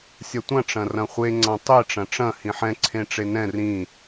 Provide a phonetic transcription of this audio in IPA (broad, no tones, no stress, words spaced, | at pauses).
sʲɐtʷɐ̃ ʈ͡ʂɐ̃rɐ̃χʷe ŋ͡ǀãtˤe ʈ͡ʂɐ̃ʈ͡ʂɐ̃ hĩħɛ̃ ǀʰẽʈ͡ʂenɛ̃ rĩ